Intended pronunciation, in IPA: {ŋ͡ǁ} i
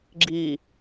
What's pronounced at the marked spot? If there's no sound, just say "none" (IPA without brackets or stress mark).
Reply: ɡ͡ǁ